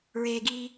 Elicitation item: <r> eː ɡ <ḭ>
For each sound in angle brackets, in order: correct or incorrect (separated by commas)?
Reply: incorrect, incorrect